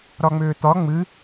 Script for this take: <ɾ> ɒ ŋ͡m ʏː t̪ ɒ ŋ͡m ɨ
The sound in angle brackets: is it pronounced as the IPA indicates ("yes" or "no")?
yes